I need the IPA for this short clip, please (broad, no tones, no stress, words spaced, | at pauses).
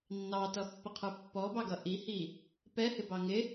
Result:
nːɑtʌpːəqʰə˞ pːɔbɑɡʌ ʔihi | pɛhɪbɑ ŋɪ